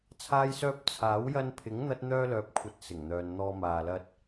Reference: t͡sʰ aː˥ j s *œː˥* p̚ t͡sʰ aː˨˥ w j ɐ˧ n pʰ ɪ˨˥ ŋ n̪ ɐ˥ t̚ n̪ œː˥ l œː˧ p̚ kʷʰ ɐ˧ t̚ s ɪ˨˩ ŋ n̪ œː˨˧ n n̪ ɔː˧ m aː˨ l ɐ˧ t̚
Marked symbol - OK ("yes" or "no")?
yes